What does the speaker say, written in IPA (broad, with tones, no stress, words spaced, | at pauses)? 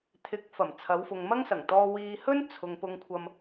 t̪ʰɪ˨˥k̚ fɐ˨˩m t͡sʰɐ˨˧wfʊ˨ŋmɐ˥ŋ sɐ˨˩ŋt̪ɔː˧ wiː˧hɵ˥n t͡sʰʊ˨ŋ pʊ˧ŋkʷʰɐ˧m